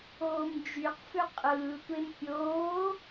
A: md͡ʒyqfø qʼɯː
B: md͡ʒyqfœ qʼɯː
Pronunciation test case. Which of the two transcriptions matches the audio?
A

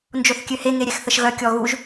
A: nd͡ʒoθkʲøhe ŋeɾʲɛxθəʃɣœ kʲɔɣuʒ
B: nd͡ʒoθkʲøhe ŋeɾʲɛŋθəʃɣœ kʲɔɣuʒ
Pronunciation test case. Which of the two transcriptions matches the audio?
A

